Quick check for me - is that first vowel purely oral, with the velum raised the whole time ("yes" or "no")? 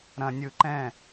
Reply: no